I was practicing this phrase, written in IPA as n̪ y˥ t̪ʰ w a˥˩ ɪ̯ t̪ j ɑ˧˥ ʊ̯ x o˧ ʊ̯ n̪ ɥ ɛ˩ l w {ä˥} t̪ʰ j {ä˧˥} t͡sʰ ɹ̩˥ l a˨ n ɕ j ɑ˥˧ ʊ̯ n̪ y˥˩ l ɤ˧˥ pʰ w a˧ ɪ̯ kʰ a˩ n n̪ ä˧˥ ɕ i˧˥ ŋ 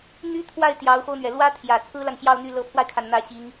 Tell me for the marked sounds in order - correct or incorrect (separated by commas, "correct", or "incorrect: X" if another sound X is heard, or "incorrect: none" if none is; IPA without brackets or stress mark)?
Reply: correct, incorrect: ä˨˩